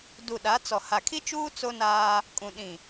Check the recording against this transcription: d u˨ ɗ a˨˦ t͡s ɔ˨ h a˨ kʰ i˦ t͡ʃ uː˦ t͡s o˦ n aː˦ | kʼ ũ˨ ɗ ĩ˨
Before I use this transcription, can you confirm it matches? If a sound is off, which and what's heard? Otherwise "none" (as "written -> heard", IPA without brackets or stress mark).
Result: none